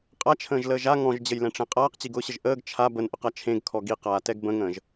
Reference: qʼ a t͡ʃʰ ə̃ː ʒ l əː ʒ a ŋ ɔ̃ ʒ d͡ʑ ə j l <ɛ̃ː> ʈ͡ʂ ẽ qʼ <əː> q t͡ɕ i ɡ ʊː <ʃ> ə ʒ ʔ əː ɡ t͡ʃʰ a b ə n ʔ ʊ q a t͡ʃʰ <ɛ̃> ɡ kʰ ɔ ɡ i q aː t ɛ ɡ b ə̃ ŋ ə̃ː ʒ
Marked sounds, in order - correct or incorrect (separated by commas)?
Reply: incorrect, incorrect, incorrect, incorrect